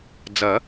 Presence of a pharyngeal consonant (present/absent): absent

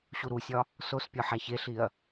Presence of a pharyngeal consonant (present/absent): present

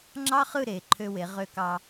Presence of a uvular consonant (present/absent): present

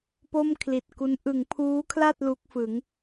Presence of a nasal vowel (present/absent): absent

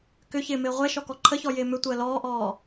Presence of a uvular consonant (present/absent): present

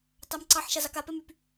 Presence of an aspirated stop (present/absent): absent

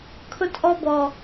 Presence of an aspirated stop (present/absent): present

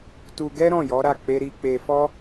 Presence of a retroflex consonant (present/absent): absent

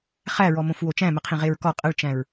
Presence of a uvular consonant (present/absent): present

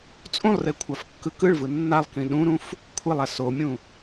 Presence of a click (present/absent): absent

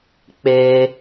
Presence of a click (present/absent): absent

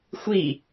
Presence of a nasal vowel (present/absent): absent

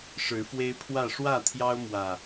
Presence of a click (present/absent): absent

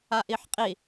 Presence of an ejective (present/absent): present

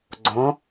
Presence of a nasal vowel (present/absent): present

